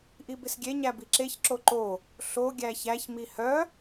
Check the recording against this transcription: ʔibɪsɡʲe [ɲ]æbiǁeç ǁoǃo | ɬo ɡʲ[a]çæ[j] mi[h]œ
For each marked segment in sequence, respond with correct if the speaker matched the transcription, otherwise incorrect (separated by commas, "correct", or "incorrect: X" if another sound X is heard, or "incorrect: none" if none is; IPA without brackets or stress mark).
correct, incorrect: æ, incorrect: ç, correct